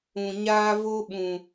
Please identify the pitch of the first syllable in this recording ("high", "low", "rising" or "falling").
low